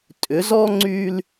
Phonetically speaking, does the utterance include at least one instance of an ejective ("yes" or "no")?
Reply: yes